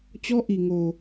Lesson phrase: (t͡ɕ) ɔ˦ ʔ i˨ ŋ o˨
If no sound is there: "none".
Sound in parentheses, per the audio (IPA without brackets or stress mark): t͡ɕ